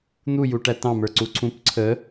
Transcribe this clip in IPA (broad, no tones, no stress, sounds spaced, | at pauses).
n̪ u j u ʈ æ t ɑ̃ m ə˞ ǀ u ǀʰ ũ p ǀʰ ə